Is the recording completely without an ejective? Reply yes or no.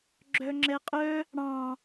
no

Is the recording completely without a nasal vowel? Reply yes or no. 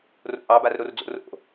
yes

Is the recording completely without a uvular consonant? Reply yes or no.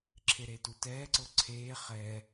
no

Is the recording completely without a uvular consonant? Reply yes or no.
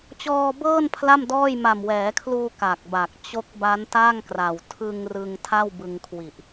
yes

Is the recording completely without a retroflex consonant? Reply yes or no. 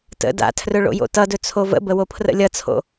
no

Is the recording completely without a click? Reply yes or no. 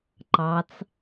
no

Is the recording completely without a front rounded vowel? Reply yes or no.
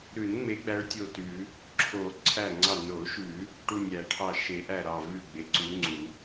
yes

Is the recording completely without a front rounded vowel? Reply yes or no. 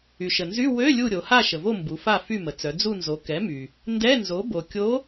no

